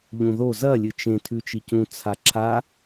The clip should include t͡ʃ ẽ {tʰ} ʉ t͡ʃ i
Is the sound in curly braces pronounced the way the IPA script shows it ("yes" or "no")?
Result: yes